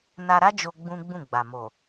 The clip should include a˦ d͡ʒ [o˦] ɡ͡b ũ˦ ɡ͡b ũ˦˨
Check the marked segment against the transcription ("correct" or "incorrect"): incorrect